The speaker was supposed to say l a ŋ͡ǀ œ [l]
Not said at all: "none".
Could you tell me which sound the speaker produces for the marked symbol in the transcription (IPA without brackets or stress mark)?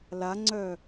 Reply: none